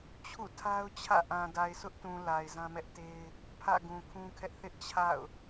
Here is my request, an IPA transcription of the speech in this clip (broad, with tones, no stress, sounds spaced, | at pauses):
t͡ɕʰ ṵ˦˨ tʰ a˦ ʊ̯ t͡ɕʰ ä̰˦˨ ʔ ã˨ d a˨ ɪ̯ sʰ ʊ˦ ʔ t ũ˨ l a˨ ɪ̯ z ã˦ m ɛ˦ ʔ t e˦ ɪ̯ | pʰ ä̰˦˨ ɡ ũ˨ kʰ ũ˦ kʰ ɛ˦ ʔ θ ɪ˦ ʔ t͡ɕʰ a̰˦˨ ʊ̯